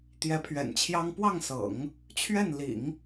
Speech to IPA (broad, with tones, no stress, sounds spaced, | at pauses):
t̪ j ɛ˧˥ pʰ ɥ ɛ̰˨˩ n t͡ɕʰ j ɑ˥ ŋ p w ɑ˥˩ ŋ s ɤ̰˨˩˦ ŋ | t͡ɕʰ ɥ ɛ˥˩ n l ḭ˨˩˦ ŋ